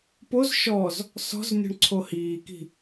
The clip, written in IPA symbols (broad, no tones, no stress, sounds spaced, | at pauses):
p o z ʃ ɔ z | s ɔ̤ z nʲ ɔ̤ ɳ ǀʰ o h iː k i̤